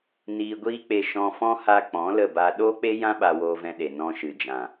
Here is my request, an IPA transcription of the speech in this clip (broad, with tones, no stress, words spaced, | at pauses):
niː˧ɡʷiː˦k͡pe˧ ʃɔ̃˧fɔ̃˦ ha˧k͡pɔ̃˨˦ lə˦˨ba˧ ɗoː˦k͡pe˦jã˦ ɓa˧woː˧vɛ̃˧ɗe˨ nɔ̃˧ʃɨ˨d͡ʒã˨